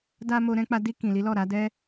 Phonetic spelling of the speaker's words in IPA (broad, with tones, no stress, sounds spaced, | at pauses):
d a˧ m o˦ ɾ ɛ̃˦ k͡p a˦ d i˧ k ĩ˨ l i˨˦ l ɔ˦˨ ɾ a˨˦ d ɛ˦